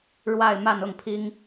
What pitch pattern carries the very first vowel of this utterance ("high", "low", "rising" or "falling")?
falling